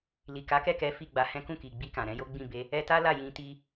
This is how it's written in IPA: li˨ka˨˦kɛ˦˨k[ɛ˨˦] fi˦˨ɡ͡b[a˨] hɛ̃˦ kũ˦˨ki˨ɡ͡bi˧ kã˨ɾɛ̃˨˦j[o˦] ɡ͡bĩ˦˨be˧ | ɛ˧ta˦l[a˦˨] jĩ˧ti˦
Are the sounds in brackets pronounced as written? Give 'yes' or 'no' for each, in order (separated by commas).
yes, no, yes, yes